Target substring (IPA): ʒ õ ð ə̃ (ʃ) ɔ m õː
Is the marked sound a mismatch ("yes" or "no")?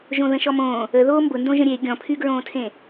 no